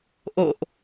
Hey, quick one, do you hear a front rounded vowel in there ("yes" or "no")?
no